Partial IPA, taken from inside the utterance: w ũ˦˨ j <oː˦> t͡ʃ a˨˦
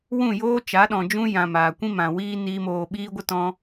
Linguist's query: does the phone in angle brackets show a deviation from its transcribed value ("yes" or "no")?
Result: no